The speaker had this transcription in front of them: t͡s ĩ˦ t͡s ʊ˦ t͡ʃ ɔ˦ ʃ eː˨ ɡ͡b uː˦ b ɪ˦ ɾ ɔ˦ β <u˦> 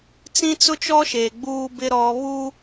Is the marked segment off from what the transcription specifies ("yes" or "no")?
no